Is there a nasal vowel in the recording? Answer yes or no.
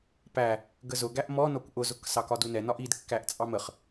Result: no